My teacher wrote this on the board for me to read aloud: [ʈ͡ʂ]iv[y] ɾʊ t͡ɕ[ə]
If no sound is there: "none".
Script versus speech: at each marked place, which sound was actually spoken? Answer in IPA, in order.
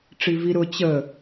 ʈ͡ʂ, i, ə

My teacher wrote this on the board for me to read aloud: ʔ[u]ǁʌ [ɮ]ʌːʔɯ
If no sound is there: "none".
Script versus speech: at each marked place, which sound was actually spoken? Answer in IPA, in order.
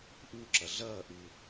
u, ɮ

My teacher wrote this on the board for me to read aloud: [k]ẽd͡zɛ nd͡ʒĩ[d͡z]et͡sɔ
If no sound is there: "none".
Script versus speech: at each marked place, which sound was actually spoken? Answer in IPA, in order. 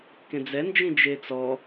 k, d͡ʒ

